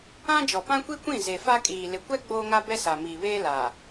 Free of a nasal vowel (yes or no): no